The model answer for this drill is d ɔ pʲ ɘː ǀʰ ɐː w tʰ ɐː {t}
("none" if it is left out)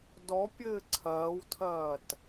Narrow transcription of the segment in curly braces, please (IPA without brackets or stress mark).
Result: t